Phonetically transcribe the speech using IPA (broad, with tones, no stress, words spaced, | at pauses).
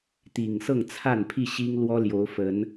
t̪i˨˩ŋsɤ˥˨ŋt͡sʰa˥˨n pʰi˥˨ɕi˦ŋ lwɔ˦ljo˨˦ʊ̯fə˨˦n